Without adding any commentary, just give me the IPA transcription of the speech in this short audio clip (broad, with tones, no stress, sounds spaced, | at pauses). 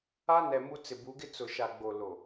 a˦ n ɛ˨ m u˦ t͡s ɪ˨ b u˨˦ ɡ ɪ˦ t͡s ʊ˨ ʃ a˨ ɡ͡b o˨ l o˨